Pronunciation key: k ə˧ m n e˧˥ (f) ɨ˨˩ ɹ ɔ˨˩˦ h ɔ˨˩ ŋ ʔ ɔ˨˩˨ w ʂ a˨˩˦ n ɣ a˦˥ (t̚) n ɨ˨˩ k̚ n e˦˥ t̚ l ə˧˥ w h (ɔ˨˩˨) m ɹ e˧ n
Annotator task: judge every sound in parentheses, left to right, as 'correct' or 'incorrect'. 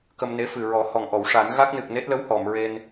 correct, incorrect, correct

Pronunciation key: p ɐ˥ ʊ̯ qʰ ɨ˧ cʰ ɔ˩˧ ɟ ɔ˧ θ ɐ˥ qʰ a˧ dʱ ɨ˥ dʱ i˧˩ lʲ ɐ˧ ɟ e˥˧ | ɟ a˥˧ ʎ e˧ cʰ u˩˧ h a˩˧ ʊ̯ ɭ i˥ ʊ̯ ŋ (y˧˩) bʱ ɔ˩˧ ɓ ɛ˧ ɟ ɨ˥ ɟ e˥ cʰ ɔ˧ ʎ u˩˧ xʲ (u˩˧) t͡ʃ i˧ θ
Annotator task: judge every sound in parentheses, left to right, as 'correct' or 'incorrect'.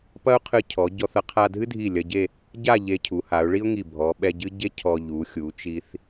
incorrect, correct

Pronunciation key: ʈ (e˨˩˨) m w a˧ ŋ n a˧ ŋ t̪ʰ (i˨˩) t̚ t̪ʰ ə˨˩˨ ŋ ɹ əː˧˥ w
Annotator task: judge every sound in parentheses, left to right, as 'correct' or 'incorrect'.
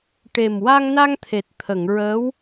incorrect, incorrect

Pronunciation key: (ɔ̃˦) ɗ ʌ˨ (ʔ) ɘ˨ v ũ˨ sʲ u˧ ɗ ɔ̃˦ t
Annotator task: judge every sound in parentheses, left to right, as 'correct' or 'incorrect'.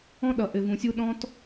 correct, correct

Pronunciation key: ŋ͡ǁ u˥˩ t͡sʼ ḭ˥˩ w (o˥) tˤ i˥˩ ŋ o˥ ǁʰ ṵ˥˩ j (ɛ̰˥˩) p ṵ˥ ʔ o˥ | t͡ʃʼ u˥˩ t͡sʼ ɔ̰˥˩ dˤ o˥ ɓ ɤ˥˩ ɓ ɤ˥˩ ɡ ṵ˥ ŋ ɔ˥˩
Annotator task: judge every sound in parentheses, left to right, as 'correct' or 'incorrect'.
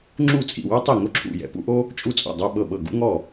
correct, incorrect

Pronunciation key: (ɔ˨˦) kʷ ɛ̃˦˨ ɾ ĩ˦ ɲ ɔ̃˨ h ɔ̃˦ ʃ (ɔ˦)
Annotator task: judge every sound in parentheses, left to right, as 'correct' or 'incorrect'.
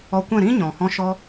incorrect, correct

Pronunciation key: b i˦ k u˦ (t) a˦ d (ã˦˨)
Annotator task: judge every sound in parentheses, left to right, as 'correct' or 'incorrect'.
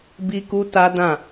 correct, correct

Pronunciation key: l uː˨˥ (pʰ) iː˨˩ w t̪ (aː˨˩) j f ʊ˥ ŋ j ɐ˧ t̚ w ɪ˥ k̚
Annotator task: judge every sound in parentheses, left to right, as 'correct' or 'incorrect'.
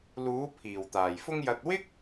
correct, correct

